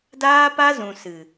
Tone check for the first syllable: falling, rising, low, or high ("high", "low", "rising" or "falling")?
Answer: high